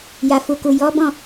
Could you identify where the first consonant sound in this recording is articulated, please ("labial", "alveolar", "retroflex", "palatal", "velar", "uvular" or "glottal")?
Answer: palatal